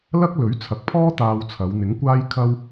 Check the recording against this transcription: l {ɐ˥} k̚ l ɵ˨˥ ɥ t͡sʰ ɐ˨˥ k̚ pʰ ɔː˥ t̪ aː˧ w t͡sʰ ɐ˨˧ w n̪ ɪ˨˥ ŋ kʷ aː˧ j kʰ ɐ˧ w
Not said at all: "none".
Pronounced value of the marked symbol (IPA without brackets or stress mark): ɐ˥